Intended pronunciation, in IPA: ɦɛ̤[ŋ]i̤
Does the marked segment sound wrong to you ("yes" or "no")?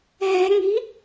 no